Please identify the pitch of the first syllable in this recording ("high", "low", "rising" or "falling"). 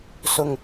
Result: low